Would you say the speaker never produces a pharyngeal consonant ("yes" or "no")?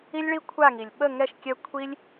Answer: yes